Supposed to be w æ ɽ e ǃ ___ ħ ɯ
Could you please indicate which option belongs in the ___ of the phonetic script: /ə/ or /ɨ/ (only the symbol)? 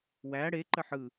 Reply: ə